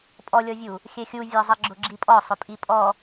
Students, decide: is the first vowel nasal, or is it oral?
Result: oral